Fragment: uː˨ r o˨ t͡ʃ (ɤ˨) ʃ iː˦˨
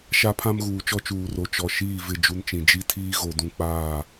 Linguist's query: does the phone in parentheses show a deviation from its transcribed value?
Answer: yes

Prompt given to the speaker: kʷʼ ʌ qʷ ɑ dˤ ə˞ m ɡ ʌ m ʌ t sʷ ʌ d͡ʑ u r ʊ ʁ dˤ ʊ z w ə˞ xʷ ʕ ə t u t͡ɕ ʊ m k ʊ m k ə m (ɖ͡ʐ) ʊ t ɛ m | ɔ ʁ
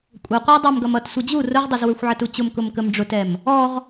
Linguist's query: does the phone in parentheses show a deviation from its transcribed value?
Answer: no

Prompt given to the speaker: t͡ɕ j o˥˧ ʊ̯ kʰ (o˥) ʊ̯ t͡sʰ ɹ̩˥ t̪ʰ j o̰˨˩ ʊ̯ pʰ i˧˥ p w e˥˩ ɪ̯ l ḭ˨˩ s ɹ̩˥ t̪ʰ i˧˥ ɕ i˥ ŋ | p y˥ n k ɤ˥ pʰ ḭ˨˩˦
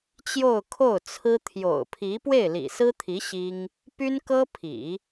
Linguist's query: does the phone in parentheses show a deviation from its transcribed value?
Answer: yes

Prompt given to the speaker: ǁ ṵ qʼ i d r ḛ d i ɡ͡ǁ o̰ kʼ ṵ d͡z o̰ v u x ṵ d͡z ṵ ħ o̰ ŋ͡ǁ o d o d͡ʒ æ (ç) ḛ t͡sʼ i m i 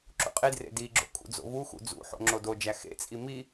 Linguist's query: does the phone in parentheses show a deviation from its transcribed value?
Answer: yes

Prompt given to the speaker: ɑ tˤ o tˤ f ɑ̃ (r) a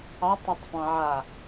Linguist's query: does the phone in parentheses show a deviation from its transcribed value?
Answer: yes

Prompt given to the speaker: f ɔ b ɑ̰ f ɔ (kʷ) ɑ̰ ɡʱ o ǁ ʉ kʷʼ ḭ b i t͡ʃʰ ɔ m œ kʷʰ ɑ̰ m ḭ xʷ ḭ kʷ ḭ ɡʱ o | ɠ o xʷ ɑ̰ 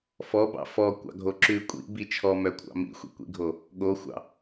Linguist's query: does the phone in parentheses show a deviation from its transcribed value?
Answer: no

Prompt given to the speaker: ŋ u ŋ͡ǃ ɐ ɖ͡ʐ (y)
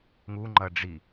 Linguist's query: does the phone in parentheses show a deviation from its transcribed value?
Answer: yes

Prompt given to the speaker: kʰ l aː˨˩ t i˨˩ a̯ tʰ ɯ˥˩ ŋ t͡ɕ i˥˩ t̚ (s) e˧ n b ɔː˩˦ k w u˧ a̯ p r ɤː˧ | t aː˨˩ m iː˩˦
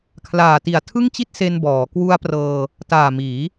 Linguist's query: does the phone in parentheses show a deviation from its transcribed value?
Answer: no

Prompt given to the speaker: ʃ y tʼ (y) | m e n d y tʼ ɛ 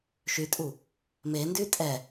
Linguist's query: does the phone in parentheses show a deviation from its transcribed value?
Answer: yes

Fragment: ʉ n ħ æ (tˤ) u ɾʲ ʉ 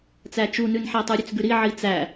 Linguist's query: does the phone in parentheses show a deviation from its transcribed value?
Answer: no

